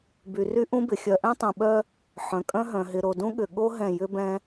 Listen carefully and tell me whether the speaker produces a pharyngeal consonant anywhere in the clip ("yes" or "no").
yes